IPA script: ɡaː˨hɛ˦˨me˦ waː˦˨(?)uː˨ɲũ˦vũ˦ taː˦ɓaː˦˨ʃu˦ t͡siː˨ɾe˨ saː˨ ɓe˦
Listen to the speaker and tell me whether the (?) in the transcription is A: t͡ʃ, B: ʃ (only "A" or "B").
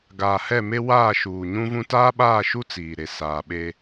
B